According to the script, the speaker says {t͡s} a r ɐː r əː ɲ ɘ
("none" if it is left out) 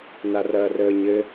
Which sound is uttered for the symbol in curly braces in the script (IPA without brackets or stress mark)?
n